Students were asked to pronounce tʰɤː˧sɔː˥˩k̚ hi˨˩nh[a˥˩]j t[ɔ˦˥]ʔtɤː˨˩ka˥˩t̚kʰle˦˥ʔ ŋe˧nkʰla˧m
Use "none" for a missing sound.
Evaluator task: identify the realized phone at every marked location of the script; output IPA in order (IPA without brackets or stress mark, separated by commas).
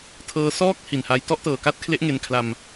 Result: a˧, ɔ˥˩